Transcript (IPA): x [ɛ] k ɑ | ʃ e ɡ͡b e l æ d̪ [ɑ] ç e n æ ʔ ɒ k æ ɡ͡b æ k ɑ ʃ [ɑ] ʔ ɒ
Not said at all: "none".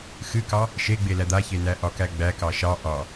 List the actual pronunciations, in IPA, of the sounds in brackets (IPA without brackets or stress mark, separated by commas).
ɨ, a, ɑ